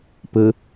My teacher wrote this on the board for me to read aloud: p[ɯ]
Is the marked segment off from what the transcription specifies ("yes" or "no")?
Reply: no